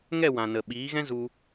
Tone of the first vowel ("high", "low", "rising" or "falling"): falling